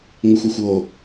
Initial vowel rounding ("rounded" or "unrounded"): unrounded